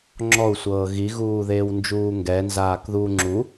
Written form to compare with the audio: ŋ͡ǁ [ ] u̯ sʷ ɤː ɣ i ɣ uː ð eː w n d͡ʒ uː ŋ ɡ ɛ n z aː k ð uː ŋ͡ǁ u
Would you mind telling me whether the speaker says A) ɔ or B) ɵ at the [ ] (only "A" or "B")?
A